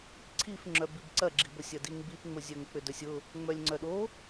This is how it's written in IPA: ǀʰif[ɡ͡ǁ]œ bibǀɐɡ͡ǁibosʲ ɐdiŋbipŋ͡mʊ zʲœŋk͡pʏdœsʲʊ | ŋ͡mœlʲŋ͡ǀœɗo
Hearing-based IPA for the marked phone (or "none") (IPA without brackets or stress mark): ŋ͡ǁ